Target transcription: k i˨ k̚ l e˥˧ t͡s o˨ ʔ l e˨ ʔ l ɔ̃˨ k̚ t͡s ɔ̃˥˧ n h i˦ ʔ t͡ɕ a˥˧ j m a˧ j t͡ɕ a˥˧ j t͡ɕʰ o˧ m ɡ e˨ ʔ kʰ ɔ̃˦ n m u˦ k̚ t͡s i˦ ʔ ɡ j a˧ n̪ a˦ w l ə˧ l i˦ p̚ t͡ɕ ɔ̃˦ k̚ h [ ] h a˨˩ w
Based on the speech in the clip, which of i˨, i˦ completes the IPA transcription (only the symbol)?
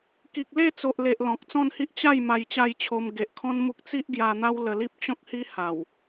i˦